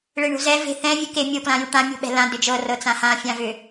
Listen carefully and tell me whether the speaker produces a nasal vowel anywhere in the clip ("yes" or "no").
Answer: yes